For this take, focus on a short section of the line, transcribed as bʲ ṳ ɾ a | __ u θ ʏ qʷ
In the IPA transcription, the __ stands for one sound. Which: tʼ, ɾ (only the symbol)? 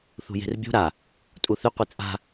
tʼ